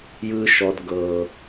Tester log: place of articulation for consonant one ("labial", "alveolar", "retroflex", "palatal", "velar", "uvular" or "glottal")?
palatal